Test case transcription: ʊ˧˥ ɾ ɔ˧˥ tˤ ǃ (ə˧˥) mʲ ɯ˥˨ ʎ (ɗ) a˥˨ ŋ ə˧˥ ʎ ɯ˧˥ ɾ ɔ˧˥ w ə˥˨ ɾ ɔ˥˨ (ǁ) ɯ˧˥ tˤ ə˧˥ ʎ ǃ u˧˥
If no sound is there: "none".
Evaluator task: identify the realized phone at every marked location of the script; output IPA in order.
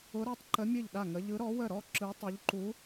ə˧˥, ɗ, ǁ

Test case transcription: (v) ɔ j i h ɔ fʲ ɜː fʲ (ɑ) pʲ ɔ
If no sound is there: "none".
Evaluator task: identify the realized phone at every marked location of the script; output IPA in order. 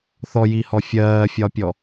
θ, ɒ

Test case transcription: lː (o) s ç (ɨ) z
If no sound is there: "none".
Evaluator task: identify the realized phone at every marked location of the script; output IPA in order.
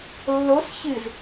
o, ɨ

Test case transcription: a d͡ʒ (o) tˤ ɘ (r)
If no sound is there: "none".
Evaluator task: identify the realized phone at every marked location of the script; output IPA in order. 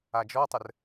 ɔ, r

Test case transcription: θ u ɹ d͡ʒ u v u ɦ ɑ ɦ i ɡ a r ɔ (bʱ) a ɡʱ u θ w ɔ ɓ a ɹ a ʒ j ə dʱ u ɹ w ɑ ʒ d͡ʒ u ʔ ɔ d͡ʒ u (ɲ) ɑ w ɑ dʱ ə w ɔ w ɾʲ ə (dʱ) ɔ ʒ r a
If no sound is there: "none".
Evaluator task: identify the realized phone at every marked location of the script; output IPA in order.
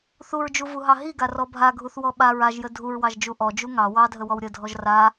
bʱ, ŋ, dʱ

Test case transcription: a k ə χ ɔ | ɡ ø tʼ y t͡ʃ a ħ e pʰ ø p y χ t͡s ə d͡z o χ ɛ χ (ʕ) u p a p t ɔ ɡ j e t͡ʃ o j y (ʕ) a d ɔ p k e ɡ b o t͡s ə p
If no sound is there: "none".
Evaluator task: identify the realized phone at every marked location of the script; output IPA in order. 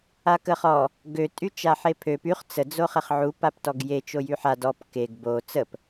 ʕ, ħ

